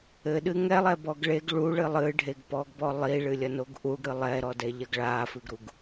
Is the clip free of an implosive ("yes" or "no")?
no